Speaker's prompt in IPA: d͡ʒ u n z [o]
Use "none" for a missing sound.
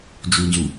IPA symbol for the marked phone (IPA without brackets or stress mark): u